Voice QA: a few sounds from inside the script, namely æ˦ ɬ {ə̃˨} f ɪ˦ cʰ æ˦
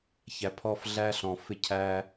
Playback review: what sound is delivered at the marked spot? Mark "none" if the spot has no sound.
ɔ̃˨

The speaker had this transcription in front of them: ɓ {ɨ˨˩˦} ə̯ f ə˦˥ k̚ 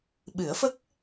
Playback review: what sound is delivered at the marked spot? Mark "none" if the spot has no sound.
ɨ˨˩˦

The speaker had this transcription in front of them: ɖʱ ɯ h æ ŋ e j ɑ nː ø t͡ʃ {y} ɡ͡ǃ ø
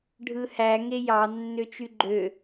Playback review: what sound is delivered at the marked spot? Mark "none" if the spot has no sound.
y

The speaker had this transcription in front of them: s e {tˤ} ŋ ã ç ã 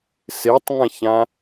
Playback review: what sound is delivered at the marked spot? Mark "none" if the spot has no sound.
tˤ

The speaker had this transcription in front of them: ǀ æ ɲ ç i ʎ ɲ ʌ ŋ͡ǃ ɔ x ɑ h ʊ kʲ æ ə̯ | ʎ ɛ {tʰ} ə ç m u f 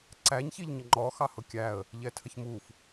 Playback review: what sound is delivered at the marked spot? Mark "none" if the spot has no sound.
tʰ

